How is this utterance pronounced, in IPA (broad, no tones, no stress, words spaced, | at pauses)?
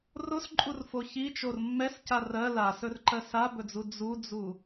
rosǃʼurfo çit͡ʃor mːɛsca rɜ lasɵrǃɜ sabɵd͡zu d͡zud͡zu